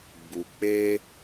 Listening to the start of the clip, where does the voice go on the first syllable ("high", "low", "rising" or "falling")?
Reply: low